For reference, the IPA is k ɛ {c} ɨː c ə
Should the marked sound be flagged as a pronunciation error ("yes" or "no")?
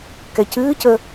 no